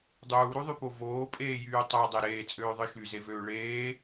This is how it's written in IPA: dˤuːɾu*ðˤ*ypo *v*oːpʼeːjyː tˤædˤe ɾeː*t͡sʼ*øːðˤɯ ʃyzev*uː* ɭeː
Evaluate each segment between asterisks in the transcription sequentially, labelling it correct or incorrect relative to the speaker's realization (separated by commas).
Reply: correct, correct, correct, incorrect